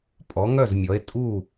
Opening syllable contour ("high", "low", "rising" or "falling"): rising